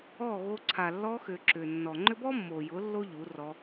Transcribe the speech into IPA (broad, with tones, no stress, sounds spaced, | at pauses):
ɔ˦˨ ɣ o˧ ǀʰ a˨ lː ɔ˧ x ʏ˨ ǁ ʏ˨ nː ɔ˨ ŋ͡ǃ ʏ˦ b ɔ˦ mː o˨ j ʊ˨˦ lː o˦ ʎ u˨˦ r ɔ˧